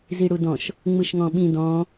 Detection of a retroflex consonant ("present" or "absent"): present